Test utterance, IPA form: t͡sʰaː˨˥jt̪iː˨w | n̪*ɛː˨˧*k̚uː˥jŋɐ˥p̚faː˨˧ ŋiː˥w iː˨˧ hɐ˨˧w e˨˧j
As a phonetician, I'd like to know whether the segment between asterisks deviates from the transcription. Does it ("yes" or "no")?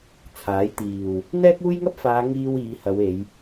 yes